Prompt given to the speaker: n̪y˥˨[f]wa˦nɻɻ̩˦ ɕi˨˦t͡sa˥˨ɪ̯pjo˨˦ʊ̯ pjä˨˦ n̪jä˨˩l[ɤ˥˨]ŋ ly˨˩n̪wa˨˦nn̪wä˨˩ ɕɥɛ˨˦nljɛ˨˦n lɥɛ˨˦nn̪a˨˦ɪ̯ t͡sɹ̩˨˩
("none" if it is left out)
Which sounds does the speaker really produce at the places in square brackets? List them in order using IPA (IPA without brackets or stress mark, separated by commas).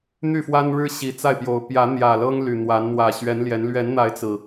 f, ɤ˦